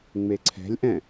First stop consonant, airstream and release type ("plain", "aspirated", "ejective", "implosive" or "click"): click